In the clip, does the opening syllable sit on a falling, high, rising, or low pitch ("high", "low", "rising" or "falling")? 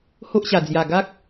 high